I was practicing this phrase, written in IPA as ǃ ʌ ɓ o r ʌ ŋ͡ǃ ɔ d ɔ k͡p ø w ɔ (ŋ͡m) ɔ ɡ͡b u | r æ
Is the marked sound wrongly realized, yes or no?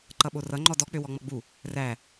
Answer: no